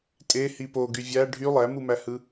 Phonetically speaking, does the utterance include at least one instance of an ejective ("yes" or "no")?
yes